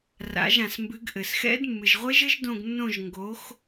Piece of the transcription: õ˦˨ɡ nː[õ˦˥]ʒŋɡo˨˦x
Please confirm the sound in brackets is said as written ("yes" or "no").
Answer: no